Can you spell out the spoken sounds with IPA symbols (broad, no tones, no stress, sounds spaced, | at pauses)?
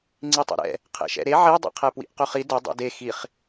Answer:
ŋ͡ǀ i tˤ ɛ̰ ɾ ɛ̰ | qʰ ḛ ʃ ɛ̰ ɾ e ʕ e dˤ ḭ qʰ ɛ p w ḭ ʔ q ɵ χ i d ɵ dˤ ṵ d e x i χ